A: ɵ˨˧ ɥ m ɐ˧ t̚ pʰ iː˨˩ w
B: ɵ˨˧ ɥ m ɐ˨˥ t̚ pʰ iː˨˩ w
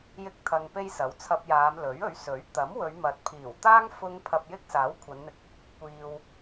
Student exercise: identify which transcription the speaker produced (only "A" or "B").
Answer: B